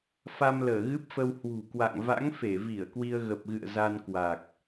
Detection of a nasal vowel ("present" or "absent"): absent